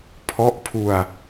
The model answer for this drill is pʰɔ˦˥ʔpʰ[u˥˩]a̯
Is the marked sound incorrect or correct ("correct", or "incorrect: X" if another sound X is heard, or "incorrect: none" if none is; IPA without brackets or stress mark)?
incorrect: u˧